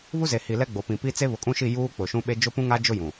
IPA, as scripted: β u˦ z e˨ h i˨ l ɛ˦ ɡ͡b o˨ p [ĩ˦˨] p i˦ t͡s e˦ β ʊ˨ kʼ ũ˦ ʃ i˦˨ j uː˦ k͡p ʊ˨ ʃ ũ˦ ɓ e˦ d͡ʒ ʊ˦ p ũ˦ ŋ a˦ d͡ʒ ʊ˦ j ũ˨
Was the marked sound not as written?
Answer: yes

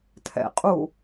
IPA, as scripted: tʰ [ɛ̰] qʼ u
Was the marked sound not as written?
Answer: no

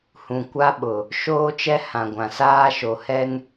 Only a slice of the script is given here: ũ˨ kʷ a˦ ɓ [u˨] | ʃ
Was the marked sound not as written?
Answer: yes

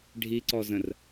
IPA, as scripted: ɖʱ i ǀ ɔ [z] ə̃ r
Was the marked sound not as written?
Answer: no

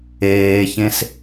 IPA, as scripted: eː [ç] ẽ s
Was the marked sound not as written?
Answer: no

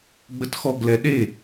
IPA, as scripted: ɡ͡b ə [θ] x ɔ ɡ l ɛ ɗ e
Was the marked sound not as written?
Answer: yes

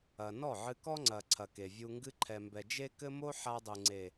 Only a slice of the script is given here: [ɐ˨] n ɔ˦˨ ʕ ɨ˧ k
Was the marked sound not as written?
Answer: no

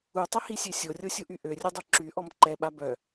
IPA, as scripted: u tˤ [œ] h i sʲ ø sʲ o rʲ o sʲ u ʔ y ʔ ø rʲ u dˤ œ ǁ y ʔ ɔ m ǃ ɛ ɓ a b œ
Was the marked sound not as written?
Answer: yes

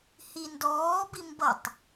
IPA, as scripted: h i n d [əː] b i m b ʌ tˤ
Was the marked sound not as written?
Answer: yes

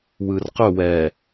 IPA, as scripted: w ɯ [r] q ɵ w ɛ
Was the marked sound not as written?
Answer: no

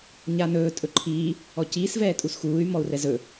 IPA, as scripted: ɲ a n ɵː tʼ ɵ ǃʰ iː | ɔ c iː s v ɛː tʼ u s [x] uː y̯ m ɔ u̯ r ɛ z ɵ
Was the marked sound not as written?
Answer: no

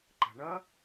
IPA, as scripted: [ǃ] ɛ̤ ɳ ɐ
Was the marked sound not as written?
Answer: no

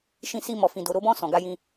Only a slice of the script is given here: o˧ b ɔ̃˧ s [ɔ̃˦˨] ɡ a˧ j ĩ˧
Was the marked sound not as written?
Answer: yes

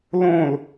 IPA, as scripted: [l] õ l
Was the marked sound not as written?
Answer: no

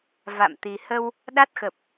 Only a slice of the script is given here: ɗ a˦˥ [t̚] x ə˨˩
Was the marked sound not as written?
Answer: no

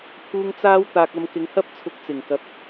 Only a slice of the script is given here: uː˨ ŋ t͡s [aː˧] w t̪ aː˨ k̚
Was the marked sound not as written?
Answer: yes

